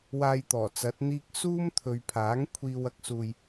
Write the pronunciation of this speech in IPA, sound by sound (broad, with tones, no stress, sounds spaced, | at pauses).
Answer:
w aː˧ j t̪ ɔː˨˩ t͡s ɐ˨˥ t̚ n̪ iː˥ k̚ s uː˥ m t̪ʰ ɵ˨ ɥ pʰ aː˨˥ ŋ kʷʰ iː˧ w ɐ˥ k̚ s uː˧ j